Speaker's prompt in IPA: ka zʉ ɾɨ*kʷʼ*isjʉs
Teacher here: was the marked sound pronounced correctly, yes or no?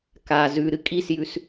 no